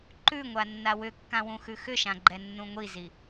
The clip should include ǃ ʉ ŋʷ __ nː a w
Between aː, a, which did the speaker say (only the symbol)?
a